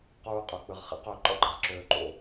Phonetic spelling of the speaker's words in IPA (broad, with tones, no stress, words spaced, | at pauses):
quː˥qʼø˧k͡pɨ˧ʁ χḛ˧˥qø˧ ǃɔ̰˥ɡ͡ǃɨ˩ʁǁøː˧ǃo̰˧